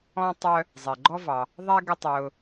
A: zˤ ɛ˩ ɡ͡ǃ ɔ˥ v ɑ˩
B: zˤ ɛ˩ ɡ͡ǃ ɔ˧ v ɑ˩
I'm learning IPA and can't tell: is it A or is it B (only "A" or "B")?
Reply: A